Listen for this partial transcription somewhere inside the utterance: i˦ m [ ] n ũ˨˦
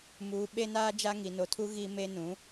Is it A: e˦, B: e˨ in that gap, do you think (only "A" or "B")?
A